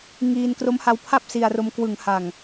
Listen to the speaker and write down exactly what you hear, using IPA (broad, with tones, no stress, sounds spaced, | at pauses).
ŋ iː˧ n k r o˦˥ m h a˦˥ w pʰ a˥˩ p̚ s i˧ a̯ r o˧ m k w ɯ˩˦ ŋ h a˨˩ ŋ